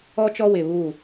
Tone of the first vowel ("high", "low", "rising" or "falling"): high